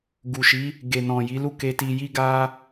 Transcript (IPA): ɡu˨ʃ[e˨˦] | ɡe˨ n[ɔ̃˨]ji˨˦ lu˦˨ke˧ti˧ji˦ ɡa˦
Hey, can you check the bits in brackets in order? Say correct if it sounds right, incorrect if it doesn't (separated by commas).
incorrect, correct